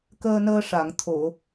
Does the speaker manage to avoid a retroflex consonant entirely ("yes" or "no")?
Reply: no